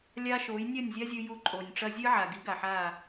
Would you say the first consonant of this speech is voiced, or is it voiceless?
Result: voiced